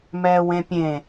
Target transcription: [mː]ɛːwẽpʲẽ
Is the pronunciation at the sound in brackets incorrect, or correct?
incorrect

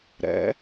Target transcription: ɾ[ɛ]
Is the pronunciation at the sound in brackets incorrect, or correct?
incorrect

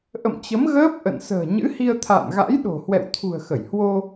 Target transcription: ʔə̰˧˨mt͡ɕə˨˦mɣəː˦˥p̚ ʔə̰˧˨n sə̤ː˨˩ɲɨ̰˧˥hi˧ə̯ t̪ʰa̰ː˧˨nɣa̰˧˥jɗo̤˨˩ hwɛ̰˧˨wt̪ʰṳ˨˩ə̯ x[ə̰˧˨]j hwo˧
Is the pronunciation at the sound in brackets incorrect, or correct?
incorrect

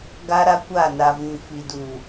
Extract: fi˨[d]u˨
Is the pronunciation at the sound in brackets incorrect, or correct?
correct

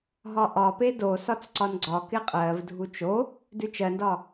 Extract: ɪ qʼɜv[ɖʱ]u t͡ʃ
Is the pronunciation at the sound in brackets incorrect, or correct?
incorrect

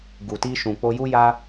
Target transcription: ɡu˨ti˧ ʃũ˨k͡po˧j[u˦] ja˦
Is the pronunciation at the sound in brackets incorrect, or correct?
correct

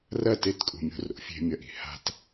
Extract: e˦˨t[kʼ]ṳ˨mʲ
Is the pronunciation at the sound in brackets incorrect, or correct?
correct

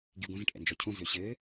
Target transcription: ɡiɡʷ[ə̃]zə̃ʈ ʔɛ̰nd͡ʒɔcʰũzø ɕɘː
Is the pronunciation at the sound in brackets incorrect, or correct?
correct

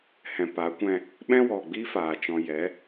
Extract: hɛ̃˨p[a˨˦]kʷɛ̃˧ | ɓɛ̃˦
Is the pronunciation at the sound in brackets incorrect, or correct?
correct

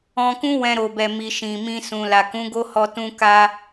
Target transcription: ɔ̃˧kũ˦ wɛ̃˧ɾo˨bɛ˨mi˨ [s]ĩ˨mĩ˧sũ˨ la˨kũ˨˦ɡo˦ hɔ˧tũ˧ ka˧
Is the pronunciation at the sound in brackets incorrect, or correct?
incorrect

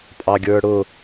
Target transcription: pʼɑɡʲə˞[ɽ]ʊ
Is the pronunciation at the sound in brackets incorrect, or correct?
correct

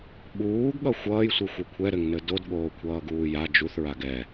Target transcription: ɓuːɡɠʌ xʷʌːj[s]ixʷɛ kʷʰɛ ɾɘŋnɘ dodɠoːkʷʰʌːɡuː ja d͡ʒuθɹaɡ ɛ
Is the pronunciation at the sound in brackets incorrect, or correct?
incorrect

